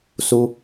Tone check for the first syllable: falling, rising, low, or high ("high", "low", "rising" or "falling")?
high